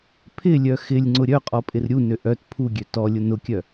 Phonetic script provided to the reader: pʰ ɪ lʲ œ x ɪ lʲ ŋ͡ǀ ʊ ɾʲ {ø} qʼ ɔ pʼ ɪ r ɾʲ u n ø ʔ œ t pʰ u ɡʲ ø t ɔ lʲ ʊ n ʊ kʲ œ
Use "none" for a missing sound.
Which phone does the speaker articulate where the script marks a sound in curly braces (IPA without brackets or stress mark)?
œ